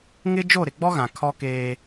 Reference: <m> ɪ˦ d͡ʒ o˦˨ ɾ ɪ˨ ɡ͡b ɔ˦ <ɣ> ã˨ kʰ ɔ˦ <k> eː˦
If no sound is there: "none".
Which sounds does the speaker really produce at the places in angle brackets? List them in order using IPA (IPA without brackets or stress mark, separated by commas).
ŋ, ɣ, k